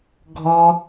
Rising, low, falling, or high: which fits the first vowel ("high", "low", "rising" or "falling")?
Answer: high